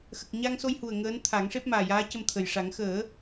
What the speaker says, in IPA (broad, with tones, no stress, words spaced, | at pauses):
xə˨˩k̚ɲa˧ŋso˧jhu˨˩ə̯ ŋəː˧˥nt̪ʰa˨˩˦ŋ ʂe˦˥p̚maː˨˩jaː˧˥cə˧m t̪ʰə˨˩jʂa˨˩˦ŋ xəː˨˩˦